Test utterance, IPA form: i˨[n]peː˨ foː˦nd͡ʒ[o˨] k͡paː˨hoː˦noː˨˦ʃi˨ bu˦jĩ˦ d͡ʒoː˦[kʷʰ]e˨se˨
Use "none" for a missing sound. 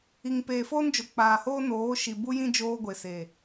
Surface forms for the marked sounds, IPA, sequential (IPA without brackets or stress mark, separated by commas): ŋ, o˨, ɡʷ